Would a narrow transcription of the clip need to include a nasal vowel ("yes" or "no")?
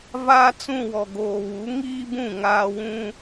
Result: yes